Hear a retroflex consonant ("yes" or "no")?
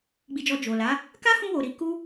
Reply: no